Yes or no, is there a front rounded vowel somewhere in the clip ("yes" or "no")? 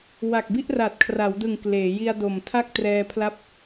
no